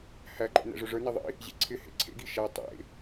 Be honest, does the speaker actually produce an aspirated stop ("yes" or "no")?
yes